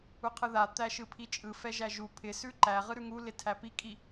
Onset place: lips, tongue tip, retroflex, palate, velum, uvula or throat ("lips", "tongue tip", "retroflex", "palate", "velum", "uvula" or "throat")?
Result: uvula